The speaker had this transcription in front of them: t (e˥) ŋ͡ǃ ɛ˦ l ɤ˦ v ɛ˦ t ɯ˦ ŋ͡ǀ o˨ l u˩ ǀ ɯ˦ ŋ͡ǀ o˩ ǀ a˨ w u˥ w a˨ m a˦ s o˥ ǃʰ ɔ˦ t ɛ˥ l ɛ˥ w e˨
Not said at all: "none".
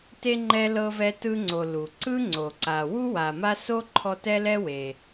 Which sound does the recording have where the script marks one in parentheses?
e˥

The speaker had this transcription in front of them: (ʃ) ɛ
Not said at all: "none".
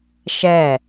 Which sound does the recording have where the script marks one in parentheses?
ʃ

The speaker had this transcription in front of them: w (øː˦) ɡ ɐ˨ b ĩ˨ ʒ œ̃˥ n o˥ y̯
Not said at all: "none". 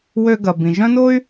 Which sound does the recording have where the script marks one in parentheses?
ø˦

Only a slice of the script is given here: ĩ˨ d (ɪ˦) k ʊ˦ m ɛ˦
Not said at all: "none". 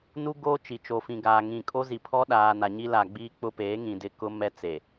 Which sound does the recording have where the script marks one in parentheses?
ɪ˦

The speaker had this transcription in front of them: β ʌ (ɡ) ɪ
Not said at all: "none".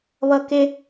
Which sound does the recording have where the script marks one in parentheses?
k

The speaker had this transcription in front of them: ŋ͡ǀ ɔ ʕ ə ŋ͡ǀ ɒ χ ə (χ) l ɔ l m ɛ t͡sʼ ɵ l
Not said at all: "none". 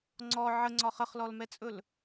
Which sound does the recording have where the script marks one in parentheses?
χ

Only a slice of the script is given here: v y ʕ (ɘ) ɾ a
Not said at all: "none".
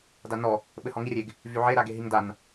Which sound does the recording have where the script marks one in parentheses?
e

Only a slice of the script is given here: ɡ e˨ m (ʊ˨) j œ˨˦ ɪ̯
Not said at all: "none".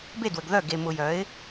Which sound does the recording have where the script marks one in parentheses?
ʊ˨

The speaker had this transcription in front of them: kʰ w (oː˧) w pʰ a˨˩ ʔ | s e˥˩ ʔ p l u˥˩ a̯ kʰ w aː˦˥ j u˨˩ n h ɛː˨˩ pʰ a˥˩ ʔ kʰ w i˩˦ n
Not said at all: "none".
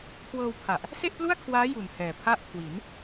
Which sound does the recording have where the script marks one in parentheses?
ɤː˧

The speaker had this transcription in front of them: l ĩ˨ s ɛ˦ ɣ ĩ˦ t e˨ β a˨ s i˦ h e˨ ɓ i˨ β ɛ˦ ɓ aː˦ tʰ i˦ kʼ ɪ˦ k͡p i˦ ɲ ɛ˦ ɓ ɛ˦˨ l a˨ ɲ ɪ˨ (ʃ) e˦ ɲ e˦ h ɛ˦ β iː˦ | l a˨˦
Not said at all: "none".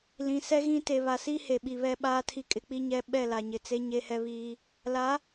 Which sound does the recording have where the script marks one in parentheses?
t͡s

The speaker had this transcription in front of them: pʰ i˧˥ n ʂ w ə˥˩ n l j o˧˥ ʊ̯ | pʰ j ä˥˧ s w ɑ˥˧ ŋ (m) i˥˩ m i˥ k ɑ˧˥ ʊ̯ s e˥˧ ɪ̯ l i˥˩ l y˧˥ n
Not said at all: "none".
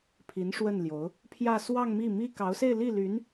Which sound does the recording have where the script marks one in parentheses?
m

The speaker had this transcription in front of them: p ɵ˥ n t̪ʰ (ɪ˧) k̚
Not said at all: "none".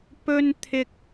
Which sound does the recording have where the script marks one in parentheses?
ɪ˥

